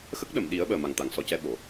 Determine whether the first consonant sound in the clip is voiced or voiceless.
voiceless